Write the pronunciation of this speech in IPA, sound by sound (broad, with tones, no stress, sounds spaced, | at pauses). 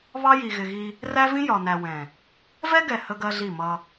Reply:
β ɑ˦ j i˨ ɣ ɪ˨ ɣ i˦ | r æ˦ v ĩ˦ j ɒ˨ n æ˨ w ɛ̃˨ | v ɛ˦ ɡ ɛ˨ h ə˦ ɡ ɜ˦ ɮ i˦˨ m ʌ˦